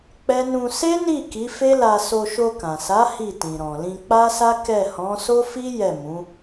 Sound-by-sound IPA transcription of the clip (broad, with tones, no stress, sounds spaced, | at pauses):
k͡p ɛ˦ n ũ˧ s e˦ n i˦˨ k i˨˦ f e˦ l a˧ s o˧ ʃ o˧ k ã˨ s a˨˦ h i˦˨ t ĩ˨ ɾ ɔ̃˨ l ĩ˧ k͡p a˦ s a˦ k ɛ˦˨ h ɔ̃˨˦ s o˦ f i˦ j ɛ˦˨ m ũ˨˦